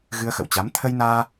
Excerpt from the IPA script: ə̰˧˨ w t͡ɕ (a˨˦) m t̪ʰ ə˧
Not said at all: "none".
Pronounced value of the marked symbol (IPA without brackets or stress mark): a˨˦